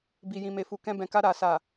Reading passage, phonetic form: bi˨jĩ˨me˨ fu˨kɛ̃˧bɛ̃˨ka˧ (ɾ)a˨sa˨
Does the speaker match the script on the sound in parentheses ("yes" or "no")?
yes